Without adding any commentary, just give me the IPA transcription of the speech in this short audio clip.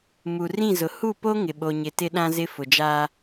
m u˨ r ĩ˦˨ z ʊ˨ h u˦˨ p o˦ ŋ ɪ˨ ɓ o˨ ɲ ɪ˨ t ɪ˦ ɗ ã˦ z ɪ˦ f ʊ˨ d͡ʒ aː˦

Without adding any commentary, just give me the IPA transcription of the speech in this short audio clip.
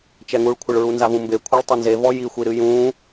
t͡ʃ ɛ ŋ u ɭ kʷʰ ɘ ɭ ɹ u n z a v ũ m b e kʷʰ ɛ ɭ tˤ ɨ n z e v ɔ j i xʷ i ɾ ɨ j ũ

